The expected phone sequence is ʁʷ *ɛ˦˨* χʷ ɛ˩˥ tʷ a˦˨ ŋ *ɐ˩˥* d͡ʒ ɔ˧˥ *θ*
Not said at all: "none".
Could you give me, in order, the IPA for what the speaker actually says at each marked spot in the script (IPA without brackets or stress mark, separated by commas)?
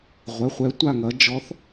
ɛ˩˥, ɐ˩˥, θ